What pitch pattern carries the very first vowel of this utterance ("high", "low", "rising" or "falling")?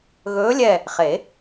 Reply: rising